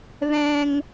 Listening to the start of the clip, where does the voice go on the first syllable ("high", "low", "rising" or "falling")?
high